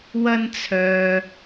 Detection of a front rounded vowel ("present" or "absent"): present